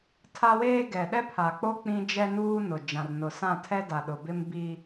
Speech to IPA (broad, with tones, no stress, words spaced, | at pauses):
tʰa˦weː˦ ɡɛ˨ɗɛ˦pʰa˨k͡po˦ k͡pĩ˦ d͡ʒɛ˦nuː˦nʊ˨ d͡ʒã˨rnʊ˨sã˦˨tʰɛ˦ da˨ɗʊ˨bɪ˦m bi˦